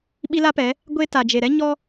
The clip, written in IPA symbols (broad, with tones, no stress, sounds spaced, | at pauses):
ɓ i˦ l a˦ p ɛ˨˦ | ɡʷ e˦ t a˨ d͡ʒ e˨ ɾ ɛ˦ ɲ ɔ˦